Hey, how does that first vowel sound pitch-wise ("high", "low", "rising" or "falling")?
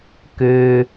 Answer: low